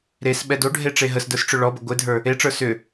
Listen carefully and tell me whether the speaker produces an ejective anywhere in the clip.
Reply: no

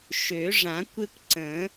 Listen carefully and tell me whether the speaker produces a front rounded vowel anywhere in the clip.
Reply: yes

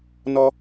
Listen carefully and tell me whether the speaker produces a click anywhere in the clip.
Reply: no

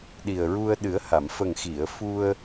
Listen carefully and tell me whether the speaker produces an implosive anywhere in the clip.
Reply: yes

